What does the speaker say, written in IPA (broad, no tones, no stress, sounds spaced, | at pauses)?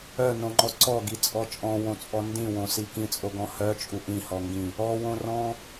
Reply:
œ n õ ŋ͡ǃ ɔ ǀ ɔ ɡ i t͡sʼ ɔ t͡ʃʼ ɔ̃ w õ t͡sʼ ɔ n d ĩ w õ s i k ĩ t͡sʼ o ɡ ɔ̃ h œ t͡ʃʼ u ʔ ĩ h ɔ ŋ ɡ ĩ | ɔ w õ r ɔ̃